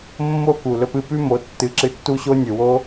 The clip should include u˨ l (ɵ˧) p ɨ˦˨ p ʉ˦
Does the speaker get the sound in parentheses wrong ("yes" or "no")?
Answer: no